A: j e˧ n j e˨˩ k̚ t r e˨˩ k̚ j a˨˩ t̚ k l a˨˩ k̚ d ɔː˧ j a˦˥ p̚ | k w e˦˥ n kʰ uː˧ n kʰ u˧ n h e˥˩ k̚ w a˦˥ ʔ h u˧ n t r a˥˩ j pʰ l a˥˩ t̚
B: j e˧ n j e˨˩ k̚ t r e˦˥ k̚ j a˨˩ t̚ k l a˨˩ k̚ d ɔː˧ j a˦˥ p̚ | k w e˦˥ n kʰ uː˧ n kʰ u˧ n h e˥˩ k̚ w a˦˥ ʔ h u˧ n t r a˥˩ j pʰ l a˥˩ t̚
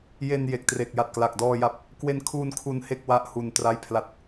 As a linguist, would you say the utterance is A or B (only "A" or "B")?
A